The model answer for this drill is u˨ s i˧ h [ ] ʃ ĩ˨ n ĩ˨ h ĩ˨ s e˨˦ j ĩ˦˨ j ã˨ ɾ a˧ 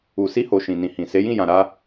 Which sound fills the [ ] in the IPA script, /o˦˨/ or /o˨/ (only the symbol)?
o˨